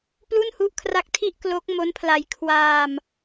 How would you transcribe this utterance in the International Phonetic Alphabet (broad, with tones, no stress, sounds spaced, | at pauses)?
p l u˥˩ n h u˦˥ ʔ kʰ r a˦˥ k̚ tʰ i˥˩ ʔ k l o˦˥ k̚ m o˦˥ n pʰ l a˧ j kʰ w aː˧ m